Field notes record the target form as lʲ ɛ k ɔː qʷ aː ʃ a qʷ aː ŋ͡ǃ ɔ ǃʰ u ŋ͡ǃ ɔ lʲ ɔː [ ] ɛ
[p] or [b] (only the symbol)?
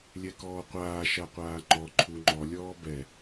b